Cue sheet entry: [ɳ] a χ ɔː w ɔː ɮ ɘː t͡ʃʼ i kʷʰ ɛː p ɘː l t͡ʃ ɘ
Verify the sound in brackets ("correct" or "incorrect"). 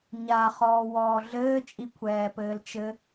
incorrect